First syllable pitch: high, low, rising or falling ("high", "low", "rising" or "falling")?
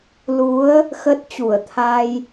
rising